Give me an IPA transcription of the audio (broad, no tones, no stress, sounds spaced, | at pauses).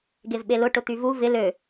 ɡ e v ɓ e l ʊ ʈ ʊ t̪ y v u v ɪ l ø